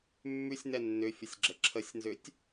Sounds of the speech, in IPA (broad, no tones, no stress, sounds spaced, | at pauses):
mː ʉ sʲ n ɛ nː ʏ fʲ ə sʲ ɡ͡ǁ ə ǁʰ ə sʲ n z ʏ tʲ